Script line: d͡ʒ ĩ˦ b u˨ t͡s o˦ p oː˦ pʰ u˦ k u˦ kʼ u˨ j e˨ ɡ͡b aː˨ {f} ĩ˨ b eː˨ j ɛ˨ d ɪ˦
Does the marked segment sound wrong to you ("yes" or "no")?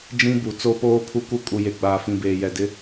no